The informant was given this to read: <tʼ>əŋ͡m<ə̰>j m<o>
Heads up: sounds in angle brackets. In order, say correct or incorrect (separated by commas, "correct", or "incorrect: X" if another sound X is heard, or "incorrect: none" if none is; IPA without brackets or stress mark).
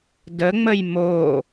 incorrect: d, incorrect: ə, correct